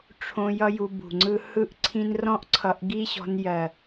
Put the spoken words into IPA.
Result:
ʈ͡ʂʰõ˧ jʌ˦ju˧bṳ˨ŋ͡ǀɯ˦ hɯ˦ʔǀʰĩ˦n rɔ̃˦ʔǀʰʌ˧ʔɡi˦ɕɔ̤˧n jɜ˨

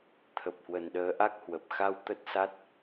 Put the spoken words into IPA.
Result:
t̪ʰə˨˩p̚hwə˨˩nɗəː˨˦ʔa˦˥k̚ hwə˨˩p̚ xa˧w t̪ə˦˥t̚sa˦˥t̚

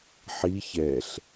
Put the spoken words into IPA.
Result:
ħi çɛɬ

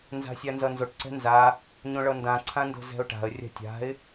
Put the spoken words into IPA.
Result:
nza̤sʲanzʌnzoʈ ǀɛ̤nza | ɲõɭʌndã ǀʰãndo̤zɛ̤ʊ̯ʈa̤ə̯ rʲa̤tʲa̤ɪ̯

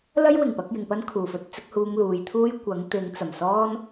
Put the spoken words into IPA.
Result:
lɐ˥jwɪ˨˩ŋpɐ˧k̚ jɪ˨ŋpɐ˥nkʰuː˨˩fɵ˥t̚ t͡sɪ˨˥k̚huː˧ŋluː˨jt̪ʰuː˥j kʷɐ˨˥ŋ t̪ɪ˨˧ŋt͡sɐ˨˩m sɔː˥n

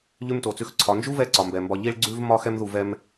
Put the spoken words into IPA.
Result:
ʎʉ˦mto˨t͡sʉ˧xǀʰɒ˨˦ nd͡ʒu˦vɛ˧ ǀɒ˨mbɛ˨mbɒ˧ ʎi˦ɭɡ͡ǀʉ˦v mɒ˦ xɛ˦mðu˨vɛ˧m

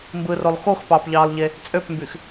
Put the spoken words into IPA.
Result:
mbɯrolˠ xoxpɑːpʎɑːlˠʎe | t͡sʼøpmbyx

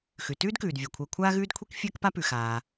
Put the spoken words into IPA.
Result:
xʉ˩ tʉː˥dkʉː˩d vʲɛ˩kʷʰəː˨kʷʰaː˥ ɣʉː˦dkʷʰi˦k fʲəː˥kpa˥pʉ˩ xaː˩

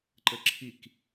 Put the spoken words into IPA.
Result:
ǃəǁʰik

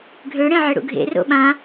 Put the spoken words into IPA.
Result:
ɡʱøɽẽ ʕeɽṵɡʱḛ ro̰ɓã

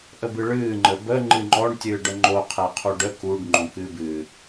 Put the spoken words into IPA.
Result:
ʔəbɨɭɨː ŋ͡ǃəbə ŋ͡ǃɨŋ͡ǃɔɳ tʲɨːɖəŋ͡ǃo qʰɛqʰuɖə kuɖ ŋ͡ǃõkɨːbɨː

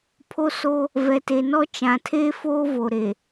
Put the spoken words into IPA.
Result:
pʰo˦so˦ | vɛ˨te˨nɔ˦ t͡ʃã˨tʰeː˦foː˦ vo˨ɾe˨

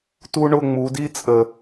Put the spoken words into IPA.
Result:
tu˦ɳʊ˦˨ ŋ͡mu˨˦di˦t͡sʼə˨

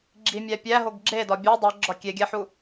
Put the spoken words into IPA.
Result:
ɡ͡ǁimʲæ pʲæɦoɡ ɡ͡ǁedɒ bʲɒ dˤoɡ͡ǁɒ kʲeɡʲæħu

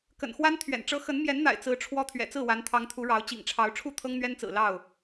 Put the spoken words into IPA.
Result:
kə̰˨˩nxwa˦n t̪ʰɥɛ̰˨˩nʈ͡ʂɤ˦ xə˨˦n mjɛ˨˦nn̪a̰˨˩ɪ̯ t͡sɹ̩˨˦ ʈ͡ʂʰwɔ˦ t̪ʰɥɛ̰˨˩t͡sɹ̩˥˨wa˨˦n t̪ʰɑ˨˦ŋt̪ʰu˨˦ ɻɑ˨˦ʊ̯ t͡ɕḭ˨˩ŋʈ͡ʂʰɑ˨˦ʊ̯ ʈ͡ʂʰu˥˨t̪ʰɤ˦ŋn̪ɥɛ˦nt͡sɹ̩˨˩ lɑ˥˨ʊ̯

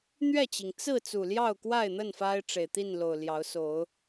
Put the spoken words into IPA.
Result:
n̪ɥɛ˥˨t͡ɕi˩ŋ t͡sɹ̩˥˨ t͡su˨˩ljɑ˥˨ʊ̯kwa˥˨ɪ̯n̪ə˥˨n fa˦ɪ̯ʈ͡ʂe˨˩ɪ̯t̪i˥˨nlo˨˩ʊ̯ ljɑ˨˦ʊ̯so˨˦ʊ̯

